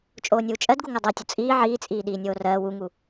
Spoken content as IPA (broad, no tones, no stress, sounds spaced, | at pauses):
t͡ʃʼ oː nʲ uː t͡ʃʼ ɜ d ɡ u ŋ ɜ dˤ ɜ tʲ o t͡sʼ iː ʕ iː t͡sʼ iː ɗ iː nʲ oː r ɜː w u ŋ u